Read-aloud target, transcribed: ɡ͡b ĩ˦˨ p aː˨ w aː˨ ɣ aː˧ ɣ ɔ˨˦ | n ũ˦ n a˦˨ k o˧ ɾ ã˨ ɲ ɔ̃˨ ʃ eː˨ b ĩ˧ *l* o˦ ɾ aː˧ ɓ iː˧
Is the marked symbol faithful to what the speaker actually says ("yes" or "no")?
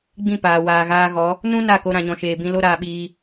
yes